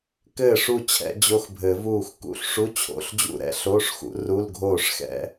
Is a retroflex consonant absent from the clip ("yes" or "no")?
no